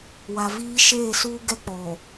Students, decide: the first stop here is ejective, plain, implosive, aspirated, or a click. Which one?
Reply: plain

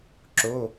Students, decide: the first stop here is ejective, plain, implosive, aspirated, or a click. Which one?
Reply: click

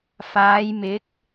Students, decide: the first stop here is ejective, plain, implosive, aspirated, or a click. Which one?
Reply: plain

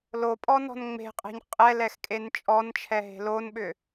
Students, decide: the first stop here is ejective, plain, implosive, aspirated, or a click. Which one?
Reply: ejective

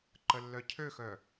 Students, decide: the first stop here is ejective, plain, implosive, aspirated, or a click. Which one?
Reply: click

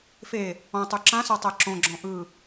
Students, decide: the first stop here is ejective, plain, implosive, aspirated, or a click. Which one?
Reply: plain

